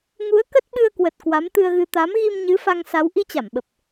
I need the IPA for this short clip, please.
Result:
ŋ u˨˦ ə̯ k ə˦˥ t̚ ɓ ɨ˧ ə̯ k w ə˨˩ t̚ k w a˨˦ m t̪ ɨ˧ ə̯ ɣ ɨ˧ t̪ a˨˦ m ɣ i˧ m ɲ ɨ˨˦ f a˧ ŋ s a˨˦ w ʔ i˧ t͡ɕ a˧˩ m ɓ ə˨˩ p̚

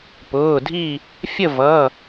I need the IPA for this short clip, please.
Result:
p ʊː˩˧˩ dʱ i˥˨ | fʲ ə˥˨ v ʌ˩˧˩

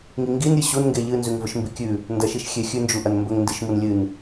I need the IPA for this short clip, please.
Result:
ŋ i ŋ ɡ i n ɾʲ ɨ ɕ u n ŋ ɡ e ʎ ɨ n z ʉ ŋ v ɵ ʃ m b i kʲ ʉ | n d ɐ ʃ i ʃ xʲ e xʲ ʉ n d͡ʒ u ʔ ɐ n m b ɵ ŋ n d i ʃ m u n lʲ ɨ n

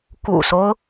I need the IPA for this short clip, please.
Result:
k ṵ˨˩ s o˦ ʊ̯

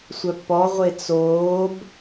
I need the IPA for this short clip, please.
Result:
sʷ œ pː ɔ ʁʷ e t͡s oː b

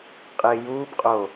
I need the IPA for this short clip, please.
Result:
qʼ ɪː j uː b qʼ o

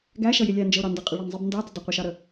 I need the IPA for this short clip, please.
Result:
ɡ æ ʃ ʌ j ɪ lʲ æ n d͡ʒ ə ʊ̯ ɾ ɑ n d ə qʼ ɪ ɭ ʌ n zˤ ɪ b n d ɑ d ə dˤ ə qʷ ʌ ʃ ɑ ɾ ə

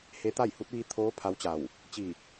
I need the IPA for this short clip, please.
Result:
h e˧˥ t̪ a˥˨ j h u˧˥ t̚ ʋ i˧ t̪ʰ oː˧˥ pʰ a˧˥ w t͡ɕ a˧˩ w | t͡ɕ i˧˩

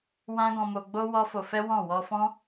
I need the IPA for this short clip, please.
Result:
w ã˦ ɡ ɔ̃˧ m o˧ ɡ͡b o˦ w ɔ˦ f o˧ f ɛ˦ w ɔ̃˦˨ w ɔ˧ f ɔ̃˦

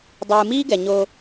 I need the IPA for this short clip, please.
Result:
dˤ ɯː˨ m iː˦ ɡ ɛ˨ ɲ o˧

